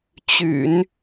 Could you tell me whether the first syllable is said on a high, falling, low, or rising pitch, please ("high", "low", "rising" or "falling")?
low